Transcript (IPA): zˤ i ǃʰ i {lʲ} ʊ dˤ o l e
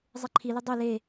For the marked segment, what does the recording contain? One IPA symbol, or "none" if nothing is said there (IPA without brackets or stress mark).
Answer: l